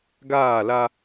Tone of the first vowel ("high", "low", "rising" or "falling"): falling